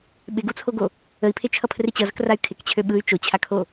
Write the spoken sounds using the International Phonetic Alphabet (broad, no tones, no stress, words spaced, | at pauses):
ɓɪɡut͡sʰoɡo | əi̯pʰet͡ʃʰʌpʰrɪ t͡ɕʌzəkray̯ kʰɪkt͡ɕʰø ɓɯy̯ t͡ʃot͡ɕʰakʰo